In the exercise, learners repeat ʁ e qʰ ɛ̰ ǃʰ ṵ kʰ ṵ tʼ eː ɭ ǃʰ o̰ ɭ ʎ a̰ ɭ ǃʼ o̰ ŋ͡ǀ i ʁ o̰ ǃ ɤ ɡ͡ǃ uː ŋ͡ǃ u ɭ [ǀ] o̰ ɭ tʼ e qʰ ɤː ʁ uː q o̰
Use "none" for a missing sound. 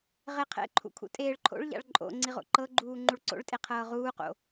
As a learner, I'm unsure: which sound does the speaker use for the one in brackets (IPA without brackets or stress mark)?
ǀ